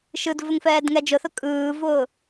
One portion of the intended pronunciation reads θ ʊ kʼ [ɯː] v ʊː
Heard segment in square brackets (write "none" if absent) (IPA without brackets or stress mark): ɯː